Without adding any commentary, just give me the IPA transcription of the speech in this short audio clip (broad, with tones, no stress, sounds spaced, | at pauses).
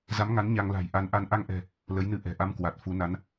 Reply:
z a˨˦ m ŋ a˨˦ n ɲ a˧ ŋ l a̤˨˩ j ʔ a˨˦ n ʔ a˧ n ʔ a˧ ŋ ʔ ɛ̤˨˩ | l ə˨˦ j n ɨ˧ ʔ ɛ̤˨˩ ʔ a˧ m k w a˨˩ t̚ f u˨˦ n a˨˦ n